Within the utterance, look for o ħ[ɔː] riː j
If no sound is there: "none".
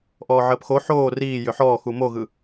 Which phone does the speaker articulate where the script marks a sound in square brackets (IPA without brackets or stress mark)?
oː